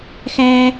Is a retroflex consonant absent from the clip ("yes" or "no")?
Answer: yes